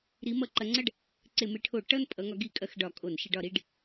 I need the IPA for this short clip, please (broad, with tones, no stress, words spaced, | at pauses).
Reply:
ɾi˨˦mʌ˧˩˧ ǃɐ˨˦ŋ͡ǀɐ˥˧ɖ | ǀe˧˩˧me˨˦ʈʰo˧˩˧ ʈʌ˥˧n pʼʌ˨˦ŋɒ˨˦ ɡi˧˩˧ kʼɐ˨˦xɖɒ˧˩˧kʼo˧˩˧n ʃɪ˧˩˧ɖɒ˧˩˧ɾi˥˧ɖ